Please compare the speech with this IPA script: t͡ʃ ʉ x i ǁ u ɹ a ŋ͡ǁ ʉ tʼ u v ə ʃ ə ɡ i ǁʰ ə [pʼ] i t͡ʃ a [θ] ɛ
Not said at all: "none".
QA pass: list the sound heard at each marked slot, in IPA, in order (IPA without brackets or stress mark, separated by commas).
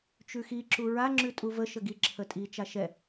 tʼ, ʃ